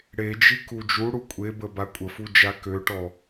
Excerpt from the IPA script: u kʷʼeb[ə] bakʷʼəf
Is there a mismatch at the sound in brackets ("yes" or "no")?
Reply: no